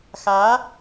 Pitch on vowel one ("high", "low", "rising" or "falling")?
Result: rising